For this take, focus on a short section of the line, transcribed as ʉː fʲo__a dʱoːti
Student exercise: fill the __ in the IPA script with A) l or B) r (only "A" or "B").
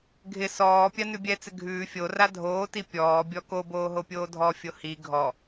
B